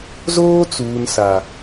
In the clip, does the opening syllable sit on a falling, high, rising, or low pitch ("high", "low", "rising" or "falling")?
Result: high